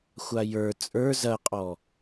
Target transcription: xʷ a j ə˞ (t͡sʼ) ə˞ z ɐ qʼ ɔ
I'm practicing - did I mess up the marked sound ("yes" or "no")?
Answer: no